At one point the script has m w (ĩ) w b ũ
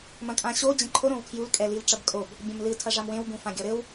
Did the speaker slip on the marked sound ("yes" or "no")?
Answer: yes